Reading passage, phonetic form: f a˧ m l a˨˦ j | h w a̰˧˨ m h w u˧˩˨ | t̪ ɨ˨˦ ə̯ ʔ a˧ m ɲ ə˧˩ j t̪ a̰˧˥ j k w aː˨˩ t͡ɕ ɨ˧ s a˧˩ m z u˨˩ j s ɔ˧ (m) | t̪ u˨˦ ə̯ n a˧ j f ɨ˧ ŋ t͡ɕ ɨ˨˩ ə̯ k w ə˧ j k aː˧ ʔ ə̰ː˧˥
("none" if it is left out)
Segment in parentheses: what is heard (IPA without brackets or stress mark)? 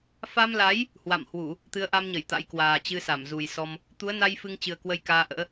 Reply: m